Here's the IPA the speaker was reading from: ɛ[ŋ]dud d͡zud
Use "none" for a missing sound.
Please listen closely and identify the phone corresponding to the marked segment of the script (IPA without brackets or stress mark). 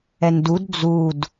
n